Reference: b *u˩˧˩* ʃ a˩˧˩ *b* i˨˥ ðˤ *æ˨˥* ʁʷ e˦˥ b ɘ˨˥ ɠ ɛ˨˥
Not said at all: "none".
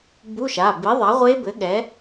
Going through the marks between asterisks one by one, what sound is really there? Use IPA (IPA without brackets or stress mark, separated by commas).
u˧˥˧, b, a˨˥